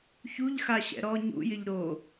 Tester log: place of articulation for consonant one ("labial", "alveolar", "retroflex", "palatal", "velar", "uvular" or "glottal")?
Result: palatal